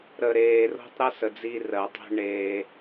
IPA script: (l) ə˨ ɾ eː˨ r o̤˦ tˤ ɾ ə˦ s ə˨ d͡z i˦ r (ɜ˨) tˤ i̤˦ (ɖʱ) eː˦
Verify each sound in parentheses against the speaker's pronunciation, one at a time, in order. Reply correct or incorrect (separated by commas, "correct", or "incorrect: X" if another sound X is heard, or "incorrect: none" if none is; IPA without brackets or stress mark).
incorrect: ɾ, correct, incorrect: ɳ